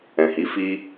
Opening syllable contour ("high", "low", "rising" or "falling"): low